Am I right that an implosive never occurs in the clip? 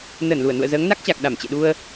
no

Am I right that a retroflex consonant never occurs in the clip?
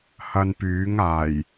yes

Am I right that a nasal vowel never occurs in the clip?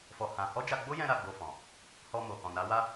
no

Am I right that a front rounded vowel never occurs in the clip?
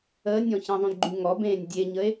no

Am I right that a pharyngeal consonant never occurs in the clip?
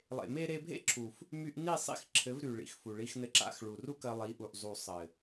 yes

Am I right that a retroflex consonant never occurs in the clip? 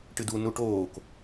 no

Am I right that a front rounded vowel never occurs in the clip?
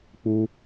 yes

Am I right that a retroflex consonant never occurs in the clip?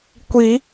yes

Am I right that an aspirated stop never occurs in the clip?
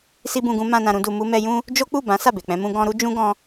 yes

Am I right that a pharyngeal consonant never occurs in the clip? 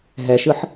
no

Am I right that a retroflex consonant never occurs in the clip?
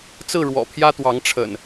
no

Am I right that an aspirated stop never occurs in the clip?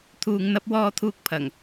no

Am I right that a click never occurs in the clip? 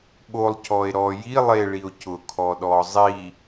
yes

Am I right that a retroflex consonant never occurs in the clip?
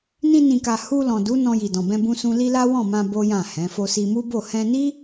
yes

